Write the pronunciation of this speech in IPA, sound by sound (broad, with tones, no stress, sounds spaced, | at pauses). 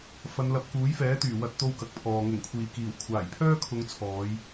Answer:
f ɐ˨˧ n l ɐ˨ p̚ k uː˨˥ j f ɛː˨˥ t̪ yː˨˩ w ɐ˥ t̚ t̪ o˥ w k ɐ˨ k̚ pʰ ɔː˨ ŋ ʊ˨˩ ŋ kʷʰ iː˨˩ k iː˨˩ w kʷʰ aː˨˩ j pʰ œː˥ kʰ ʊ˨˧ ŋ t͡sʰ ɔː˨˧ j